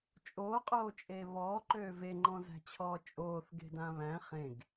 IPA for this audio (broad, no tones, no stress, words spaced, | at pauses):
t͡ʃʼoːqʼoːt͡ʃʼeː βɔːǃøː veŋ͡ǃɔ̃zæ̤t͡ɕʰɔː t͡ʃʼoːθɡe̤dã βæ̃ χẽɡ